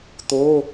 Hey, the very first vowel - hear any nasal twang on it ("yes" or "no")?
no